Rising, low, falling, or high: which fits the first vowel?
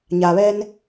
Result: low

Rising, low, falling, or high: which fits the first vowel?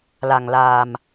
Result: low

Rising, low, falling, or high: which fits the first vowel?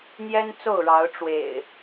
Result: high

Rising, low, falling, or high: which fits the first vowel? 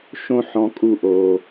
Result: high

